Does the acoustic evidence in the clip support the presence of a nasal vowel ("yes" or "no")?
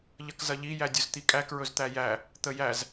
no